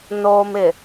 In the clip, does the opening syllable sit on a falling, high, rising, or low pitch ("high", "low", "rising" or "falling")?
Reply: low